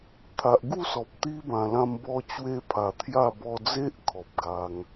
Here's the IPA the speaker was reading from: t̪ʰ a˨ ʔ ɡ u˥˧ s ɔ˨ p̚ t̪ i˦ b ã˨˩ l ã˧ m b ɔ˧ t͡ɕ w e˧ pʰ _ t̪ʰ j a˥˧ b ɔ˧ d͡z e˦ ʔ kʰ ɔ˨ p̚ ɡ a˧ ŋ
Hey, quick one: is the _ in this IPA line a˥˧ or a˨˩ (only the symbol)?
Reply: a˨˩